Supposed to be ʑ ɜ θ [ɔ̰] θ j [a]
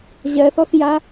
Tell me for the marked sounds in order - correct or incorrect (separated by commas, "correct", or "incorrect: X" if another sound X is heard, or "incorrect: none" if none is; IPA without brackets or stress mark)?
incorrect: ɔ, correct